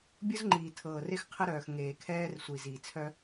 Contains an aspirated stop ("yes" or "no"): yes